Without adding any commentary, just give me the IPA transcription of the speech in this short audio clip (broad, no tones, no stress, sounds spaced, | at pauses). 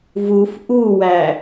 v u f ʔ u w æ